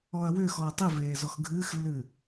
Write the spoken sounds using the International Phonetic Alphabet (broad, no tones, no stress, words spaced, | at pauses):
ɔɐ̯wʏːxɔɐ̯ tˤiveː zɔxɡʱɨːxlːɨ